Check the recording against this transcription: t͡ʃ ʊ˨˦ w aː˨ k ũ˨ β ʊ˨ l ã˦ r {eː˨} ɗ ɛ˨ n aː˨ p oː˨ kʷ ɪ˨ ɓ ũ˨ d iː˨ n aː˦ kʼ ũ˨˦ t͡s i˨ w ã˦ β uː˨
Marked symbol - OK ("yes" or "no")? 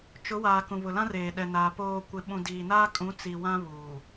yes